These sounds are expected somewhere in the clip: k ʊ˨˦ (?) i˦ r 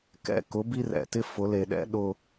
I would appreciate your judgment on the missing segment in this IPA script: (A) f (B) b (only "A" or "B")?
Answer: B